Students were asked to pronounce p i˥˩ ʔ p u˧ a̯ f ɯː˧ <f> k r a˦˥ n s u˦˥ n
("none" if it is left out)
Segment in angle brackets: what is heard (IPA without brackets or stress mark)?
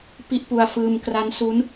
m